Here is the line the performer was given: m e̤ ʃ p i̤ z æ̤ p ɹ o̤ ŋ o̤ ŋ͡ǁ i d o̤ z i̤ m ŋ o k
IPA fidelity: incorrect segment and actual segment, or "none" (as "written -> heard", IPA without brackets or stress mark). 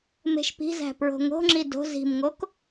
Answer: none